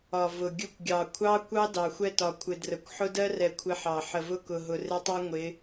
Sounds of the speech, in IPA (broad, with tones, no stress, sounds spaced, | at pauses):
ɒ˨ v ʊ˨ ɡʲ ʊ˦ kʷ ɡʲ ɑ˨ kʷʰ ɑ˦ kʷ ɑ˦ d ɑ˨ xʷ ɛ˦ t ɒ˨ kʷʰ ɪ˨ d r ə˨ kʷ ħ ʊ˦ d ɜ˦ r ɛ˨ kʷʰ ɪ˦ ħ ɑ˨ ħ ə˨ v ʊ˦ k ʊ˨ ɦ ʊ˨ r ɪ˦ tˤ ɛ˦ ŋʷ ɪ˨˦